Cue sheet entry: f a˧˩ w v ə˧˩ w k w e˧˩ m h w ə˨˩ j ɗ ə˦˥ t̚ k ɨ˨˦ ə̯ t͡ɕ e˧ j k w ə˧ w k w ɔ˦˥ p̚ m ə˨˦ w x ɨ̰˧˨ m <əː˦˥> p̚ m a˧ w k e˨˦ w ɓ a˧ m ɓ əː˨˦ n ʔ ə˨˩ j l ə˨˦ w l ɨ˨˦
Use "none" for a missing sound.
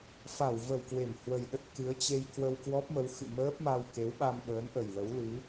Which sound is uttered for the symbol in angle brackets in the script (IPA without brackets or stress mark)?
əː˦˥